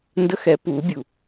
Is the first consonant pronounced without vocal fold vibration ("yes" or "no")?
no